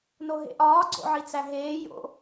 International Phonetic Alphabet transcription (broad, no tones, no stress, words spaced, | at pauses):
noɦḛʔɒː ɡ͡ǀo̰ʕit͡sæɦeː jo̰